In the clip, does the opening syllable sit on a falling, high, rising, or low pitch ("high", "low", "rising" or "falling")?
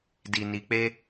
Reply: low